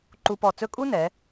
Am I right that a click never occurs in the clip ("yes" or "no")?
no